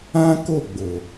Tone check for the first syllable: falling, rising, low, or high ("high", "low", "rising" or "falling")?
high